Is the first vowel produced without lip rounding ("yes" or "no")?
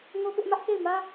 no